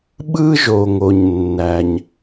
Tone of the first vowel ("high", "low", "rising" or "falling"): high